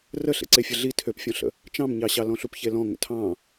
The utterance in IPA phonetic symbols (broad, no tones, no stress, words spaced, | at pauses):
rəɬḛ ǀefʲəɮi tʰøpfʲɔ̃ɬə̰ | t͡ʃɑ̃mɲɑɕɑ lɔ̃ɬupçelɔ̃ ŋə̰tʰɑ̃